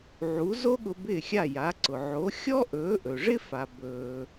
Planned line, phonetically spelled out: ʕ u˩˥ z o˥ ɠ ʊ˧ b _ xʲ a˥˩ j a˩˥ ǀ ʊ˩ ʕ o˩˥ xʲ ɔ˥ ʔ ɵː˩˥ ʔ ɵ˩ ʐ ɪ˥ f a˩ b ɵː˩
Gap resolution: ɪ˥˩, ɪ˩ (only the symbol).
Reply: ɪ˥˩